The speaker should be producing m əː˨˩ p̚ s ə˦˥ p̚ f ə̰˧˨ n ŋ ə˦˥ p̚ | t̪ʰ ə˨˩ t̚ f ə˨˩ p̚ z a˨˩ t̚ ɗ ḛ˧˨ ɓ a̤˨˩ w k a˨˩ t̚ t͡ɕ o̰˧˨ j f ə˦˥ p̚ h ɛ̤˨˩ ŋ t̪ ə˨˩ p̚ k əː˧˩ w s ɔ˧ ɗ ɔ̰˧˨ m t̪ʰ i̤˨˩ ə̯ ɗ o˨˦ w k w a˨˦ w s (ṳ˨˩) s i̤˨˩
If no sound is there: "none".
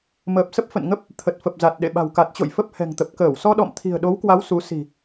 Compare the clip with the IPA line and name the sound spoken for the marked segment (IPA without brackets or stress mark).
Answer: u˨˦